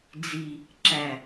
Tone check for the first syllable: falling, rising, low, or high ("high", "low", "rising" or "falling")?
low